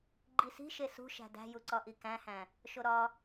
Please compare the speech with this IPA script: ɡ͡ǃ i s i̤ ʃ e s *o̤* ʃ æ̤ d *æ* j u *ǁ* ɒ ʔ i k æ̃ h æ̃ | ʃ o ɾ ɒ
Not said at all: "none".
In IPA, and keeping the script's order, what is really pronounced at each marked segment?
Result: ṳ, æ̤, ǀ

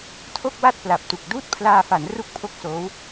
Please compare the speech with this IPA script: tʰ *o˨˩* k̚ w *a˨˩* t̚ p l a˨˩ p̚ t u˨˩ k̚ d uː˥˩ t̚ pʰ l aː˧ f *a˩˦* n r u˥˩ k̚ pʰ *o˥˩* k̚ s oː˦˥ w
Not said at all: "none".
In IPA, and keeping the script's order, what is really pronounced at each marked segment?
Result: o˥˩, a˥˩, a˩˦, o˥˩

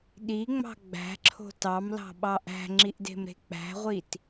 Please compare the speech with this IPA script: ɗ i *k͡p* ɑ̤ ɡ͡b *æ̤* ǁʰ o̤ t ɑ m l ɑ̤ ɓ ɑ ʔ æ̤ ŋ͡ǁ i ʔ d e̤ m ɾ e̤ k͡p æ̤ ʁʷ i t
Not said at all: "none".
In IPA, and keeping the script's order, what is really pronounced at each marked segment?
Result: ŋ͡m, æ̤

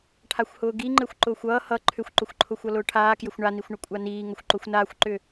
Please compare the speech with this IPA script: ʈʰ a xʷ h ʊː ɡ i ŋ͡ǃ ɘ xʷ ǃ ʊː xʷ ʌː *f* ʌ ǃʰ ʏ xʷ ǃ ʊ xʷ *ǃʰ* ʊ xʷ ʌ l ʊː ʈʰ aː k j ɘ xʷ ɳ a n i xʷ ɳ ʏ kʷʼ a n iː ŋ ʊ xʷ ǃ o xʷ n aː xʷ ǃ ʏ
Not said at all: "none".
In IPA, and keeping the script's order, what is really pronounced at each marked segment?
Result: h, ǃʰ

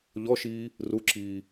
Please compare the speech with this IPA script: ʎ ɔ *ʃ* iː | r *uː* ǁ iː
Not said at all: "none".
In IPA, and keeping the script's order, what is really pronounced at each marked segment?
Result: ʃ, u

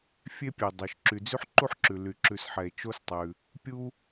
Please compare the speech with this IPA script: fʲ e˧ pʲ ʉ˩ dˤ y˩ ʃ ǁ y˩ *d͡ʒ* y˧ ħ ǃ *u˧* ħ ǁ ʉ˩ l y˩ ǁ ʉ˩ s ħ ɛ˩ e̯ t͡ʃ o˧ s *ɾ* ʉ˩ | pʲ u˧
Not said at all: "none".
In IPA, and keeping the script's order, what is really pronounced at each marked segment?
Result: d͡z, u˧, tˤ

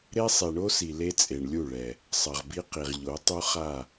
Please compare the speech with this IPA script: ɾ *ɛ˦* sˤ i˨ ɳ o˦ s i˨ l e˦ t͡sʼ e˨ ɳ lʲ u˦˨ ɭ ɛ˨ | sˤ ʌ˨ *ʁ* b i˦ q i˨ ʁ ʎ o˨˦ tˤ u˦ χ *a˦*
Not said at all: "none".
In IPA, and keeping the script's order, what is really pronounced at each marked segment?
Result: e˦, ʁ, a˦˨

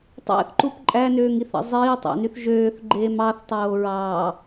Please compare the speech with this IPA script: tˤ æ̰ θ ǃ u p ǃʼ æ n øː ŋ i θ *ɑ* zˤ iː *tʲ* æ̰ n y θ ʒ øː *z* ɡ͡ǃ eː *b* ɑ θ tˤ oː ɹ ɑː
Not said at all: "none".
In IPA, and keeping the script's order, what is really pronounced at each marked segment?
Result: ɑ̰, tˤ, θ, m

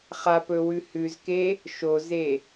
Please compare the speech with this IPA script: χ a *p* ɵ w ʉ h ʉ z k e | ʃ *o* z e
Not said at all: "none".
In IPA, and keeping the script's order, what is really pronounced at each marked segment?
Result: p, o

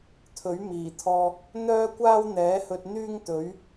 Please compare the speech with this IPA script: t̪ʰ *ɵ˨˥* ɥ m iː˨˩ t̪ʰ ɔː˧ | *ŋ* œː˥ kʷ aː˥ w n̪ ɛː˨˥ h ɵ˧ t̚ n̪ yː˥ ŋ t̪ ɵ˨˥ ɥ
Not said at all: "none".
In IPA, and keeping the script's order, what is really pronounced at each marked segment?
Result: ɵ˨˥, n̪

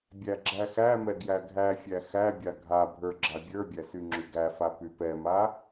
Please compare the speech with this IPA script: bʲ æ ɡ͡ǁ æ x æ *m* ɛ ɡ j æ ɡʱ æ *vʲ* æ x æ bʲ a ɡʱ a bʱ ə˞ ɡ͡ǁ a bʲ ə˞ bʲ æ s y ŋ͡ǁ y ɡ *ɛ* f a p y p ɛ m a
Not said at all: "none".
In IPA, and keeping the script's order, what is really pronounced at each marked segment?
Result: m, fʲ, æ

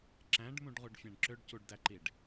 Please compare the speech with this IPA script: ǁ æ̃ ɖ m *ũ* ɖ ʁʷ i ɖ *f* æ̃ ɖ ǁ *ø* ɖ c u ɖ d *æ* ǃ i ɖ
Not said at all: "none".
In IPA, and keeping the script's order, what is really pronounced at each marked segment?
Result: ũ, fʲ, ø, æ

